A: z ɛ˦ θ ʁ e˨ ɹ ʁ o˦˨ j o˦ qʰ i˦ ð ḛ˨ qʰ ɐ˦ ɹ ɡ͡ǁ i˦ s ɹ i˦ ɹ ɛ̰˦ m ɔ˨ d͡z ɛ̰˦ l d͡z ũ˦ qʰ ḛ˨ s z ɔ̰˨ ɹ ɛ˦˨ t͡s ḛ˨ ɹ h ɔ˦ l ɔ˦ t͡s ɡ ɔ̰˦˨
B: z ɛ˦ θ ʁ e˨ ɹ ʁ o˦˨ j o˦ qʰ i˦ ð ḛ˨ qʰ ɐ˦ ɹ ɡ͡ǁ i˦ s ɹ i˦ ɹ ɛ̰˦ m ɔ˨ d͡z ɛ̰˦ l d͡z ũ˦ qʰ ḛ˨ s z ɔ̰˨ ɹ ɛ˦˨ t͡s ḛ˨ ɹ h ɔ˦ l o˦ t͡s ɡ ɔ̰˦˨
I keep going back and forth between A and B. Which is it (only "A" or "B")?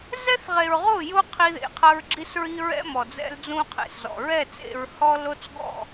B